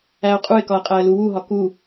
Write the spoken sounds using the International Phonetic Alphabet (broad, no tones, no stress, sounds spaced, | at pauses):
æ ʊ̯ qʼ u ɪ̯ k ɒ ə̯ qʼ æ ə̯ l u w u ɦ ɒ k u